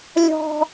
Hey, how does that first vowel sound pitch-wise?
high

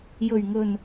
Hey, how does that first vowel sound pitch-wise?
low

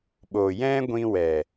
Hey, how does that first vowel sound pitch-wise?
low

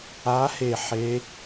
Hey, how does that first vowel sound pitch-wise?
rising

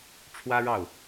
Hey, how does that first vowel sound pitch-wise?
high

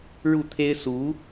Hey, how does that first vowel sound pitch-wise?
falling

